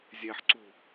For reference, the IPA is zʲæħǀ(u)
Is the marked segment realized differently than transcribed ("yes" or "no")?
no